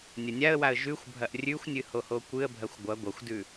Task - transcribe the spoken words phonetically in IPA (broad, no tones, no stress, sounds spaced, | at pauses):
nʲ ɐ nʲ a ə̯ w a ə̯ ʒ ʉ xʷ bʱ ɐ ʔ rʲ ʉ xʷ nʲ ɨ h o h o kʷ ɨ ə̯ bʱ ɐ xʷ ɡʷ ɐ ɡʷ ɐ xʷ d ʉ